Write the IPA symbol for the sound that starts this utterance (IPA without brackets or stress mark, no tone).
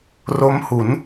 r